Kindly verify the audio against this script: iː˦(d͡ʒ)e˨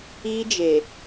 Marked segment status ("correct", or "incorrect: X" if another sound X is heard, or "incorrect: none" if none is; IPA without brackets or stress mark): correct